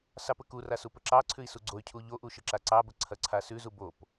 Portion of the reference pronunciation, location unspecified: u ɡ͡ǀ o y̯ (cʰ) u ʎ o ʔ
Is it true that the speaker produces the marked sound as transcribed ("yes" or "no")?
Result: yes